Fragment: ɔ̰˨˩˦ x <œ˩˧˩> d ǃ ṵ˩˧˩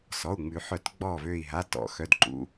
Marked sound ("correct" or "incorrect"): correct